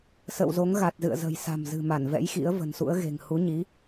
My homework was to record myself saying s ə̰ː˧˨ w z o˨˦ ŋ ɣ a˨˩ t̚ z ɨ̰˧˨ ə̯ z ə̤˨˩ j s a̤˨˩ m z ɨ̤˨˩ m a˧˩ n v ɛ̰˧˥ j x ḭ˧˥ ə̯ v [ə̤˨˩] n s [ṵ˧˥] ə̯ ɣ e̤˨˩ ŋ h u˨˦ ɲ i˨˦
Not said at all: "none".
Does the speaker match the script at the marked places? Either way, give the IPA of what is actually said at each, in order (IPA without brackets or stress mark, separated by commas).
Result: ə̤˨˩, ṵ˧˥